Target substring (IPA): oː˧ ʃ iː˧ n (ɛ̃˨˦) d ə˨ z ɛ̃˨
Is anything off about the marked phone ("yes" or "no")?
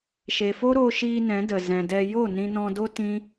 no